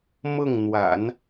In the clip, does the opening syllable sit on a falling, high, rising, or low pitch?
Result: falling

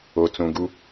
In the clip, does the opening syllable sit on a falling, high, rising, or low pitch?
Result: low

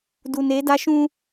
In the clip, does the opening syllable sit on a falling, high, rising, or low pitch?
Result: low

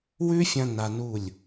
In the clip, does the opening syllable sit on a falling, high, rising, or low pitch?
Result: high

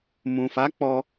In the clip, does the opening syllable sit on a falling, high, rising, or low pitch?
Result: low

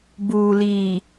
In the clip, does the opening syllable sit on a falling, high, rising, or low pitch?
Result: low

